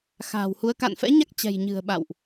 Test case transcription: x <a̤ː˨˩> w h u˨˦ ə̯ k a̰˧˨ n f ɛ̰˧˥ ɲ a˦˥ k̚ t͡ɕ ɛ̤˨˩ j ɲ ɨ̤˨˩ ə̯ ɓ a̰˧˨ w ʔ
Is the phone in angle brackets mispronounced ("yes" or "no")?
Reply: no